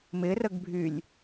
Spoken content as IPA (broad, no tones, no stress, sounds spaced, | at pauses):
m ɪ r ə ɡ bʱ y lʲ